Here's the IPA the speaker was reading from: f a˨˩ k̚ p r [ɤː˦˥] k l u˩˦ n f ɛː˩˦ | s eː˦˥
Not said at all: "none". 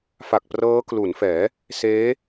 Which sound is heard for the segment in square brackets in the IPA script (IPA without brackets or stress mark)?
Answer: ɤː˦˥